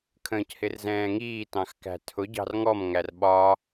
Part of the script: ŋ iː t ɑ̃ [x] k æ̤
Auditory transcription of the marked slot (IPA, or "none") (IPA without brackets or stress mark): x